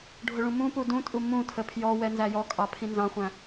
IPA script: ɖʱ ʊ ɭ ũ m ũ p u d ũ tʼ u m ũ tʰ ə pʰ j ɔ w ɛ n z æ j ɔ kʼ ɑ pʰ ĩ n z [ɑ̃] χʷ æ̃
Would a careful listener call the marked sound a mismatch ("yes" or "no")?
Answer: no